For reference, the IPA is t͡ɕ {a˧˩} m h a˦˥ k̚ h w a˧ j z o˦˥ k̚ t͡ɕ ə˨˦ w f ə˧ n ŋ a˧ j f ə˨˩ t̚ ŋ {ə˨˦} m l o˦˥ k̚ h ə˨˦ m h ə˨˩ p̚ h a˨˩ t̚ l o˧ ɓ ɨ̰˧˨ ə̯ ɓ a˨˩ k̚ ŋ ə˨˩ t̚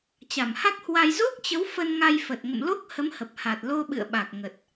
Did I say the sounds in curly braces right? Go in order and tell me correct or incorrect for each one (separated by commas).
correct, incorrect